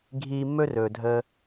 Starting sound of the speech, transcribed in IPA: ɡʱ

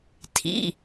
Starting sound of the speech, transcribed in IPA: tʰ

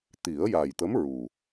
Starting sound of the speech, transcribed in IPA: t̪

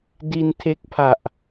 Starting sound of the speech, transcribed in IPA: d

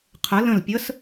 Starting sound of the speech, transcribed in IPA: qʰ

